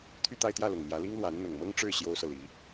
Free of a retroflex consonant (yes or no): no